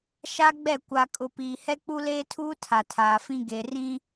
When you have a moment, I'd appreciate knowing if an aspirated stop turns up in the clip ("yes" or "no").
yes